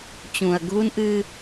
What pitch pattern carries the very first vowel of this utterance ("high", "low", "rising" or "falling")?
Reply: low